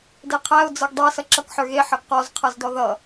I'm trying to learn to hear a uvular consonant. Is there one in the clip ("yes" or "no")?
yes